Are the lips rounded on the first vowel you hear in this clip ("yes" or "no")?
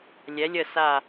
no